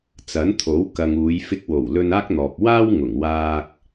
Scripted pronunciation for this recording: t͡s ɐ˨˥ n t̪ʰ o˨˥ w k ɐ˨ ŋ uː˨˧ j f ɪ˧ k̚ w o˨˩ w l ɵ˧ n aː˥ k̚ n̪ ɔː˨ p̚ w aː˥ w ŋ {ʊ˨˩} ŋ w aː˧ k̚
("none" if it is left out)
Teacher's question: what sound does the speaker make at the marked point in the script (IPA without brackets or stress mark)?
ʊ˨˩